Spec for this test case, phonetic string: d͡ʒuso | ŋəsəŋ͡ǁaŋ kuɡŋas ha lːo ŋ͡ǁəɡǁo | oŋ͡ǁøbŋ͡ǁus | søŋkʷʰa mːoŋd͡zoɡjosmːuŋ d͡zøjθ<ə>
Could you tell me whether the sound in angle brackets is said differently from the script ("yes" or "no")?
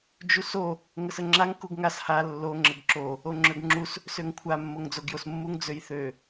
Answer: yes